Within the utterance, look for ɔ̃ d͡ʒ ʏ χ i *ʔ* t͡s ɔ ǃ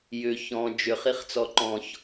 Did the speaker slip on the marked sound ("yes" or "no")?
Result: yes